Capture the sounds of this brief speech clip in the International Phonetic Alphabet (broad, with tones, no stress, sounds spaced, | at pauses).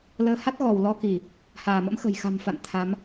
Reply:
l əː˨˦ h a˦˥ t̚ ɣ ɔ˧˩ w l ɔ˧ k i˧˩˨ | h aː˧˩ m ə̰˧˥ m x ə̤˨˩ j x a̤˨˩ m f a̰˧˨ n t̪ʰ a˨˦ m